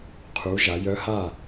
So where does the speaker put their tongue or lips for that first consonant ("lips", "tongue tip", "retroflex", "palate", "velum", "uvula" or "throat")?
uvula